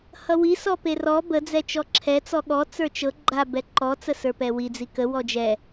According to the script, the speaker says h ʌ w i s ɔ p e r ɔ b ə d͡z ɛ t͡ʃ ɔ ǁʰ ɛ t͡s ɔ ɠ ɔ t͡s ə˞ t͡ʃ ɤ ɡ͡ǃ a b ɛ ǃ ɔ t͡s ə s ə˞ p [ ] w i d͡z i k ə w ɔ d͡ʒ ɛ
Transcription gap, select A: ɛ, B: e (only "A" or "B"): A